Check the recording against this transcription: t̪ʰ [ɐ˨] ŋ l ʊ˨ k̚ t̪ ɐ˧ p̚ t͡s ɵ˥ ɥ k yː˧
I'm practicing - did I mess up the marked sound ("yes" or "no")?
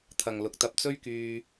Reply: no